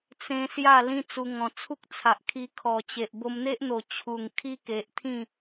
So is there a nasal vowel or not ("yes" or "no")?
yes